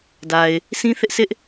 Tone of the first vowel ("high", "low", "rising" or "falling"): low